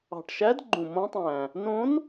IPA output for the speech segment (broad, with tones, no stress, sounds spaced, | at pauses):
ɑ̤˨˩ ʈ ʃ æ˧˥ d ɡ͡ǃ ũ˨˩ m õ˧˥ tˤ æ̃˨˩ | n õ˧˥ n